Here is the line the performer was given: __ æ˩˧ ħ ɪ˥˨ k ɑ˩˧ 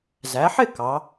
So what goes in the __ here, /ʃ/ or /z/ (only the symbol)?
z